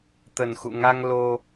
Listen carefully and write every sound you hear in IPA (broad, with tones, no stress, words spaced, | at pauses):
t̪ə˨˩nxṵ˧˨ŋa˧ŋ lo˧